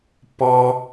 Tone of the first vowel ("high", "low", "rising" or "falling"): high